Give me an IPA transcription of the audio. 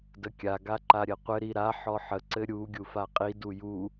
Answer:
d ə kʲ a ɡ a ǃ a ɾʲ ɘ qʷ ɘ ɾ i ɾ a ħ ɔ ħ ə ǀ ɘ ɾʲ u ɡʲ u f a qʼ i d u j u

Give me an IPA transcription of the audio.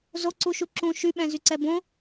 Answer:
z o ǀ u ʃ u ǁ ũ ʃ y ɓ ɛ̃ z y ǀ ɛ b õ

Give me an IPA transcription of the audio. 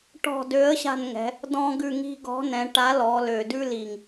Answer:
ʈ ɔ̤˦˨ d ø˨˥ ə̯ ɕ a̤˦˨ n ŋ ɛ̤˩˧ | d ɔ̃˦ ɡ ʉ˦˨ ŋ i̤˦ ɡ ɔ̤˨˥ n ɛ̃˩˧ ʈ a˨˥ l ɔ˩˧ l ø˨˩ d ʉ˦ l i˨˩ ŋ

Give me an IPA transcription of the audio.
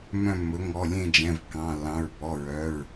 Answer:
m œ̃˦˨ mː ɵ˩˥ ŋ ɔ˩˧˩ lʲ ẽ˦˨ d͡ʒ ɛ̃˩˧˩ v kː ɑ̃˩˧˩ lː ɑ̃˩˧˩ ɹ b ɔ˩˧˩ ɹ œ˩˧˩ ɹ

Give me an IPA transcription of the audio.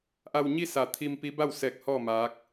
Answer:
ʔ a˧ w ɲ i˥˨ s a˧˩ t̪ʰ i˧ m p i˧˥ b a˥˨ w s ɛː˧ k̚ h ɔː˥˨ m aː˧˥ k̚

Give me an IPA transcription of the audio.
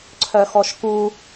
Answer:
ǀʰ œ x ɔ ʃ k u

